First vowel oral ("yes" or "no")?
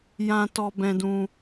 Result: no